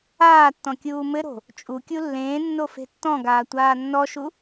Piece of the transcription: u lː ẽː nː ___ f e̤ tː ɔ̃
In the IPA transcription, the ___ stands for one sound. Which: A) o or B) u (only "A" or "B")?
A